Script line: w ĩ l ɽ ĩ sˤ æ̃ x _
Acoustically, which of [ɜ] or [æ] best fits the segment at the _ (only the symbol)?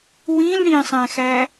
æ